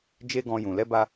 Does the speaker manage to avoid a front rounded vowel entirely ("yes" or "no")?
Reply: yes